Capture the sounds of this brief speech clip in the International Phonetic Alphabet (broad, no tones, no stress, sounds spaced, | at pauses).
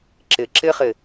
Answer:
ǁ ɪ ǁ ɪ χ ɪ